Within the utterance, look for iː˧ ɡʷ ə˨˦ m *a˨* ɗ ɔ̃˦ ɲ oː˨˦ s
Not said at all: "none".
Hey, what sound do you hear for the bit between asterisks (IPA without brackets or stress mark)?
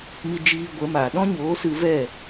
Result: aː˨